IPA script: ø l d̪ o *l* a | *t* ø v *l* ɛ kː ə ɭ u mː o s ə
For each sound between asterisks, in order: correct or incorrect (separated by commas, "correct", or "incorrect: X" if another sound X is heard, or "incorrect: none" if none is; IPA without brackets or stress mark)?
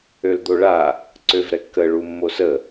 incorrect: ɭ, incorrect: ǀ, incorrect: ɾ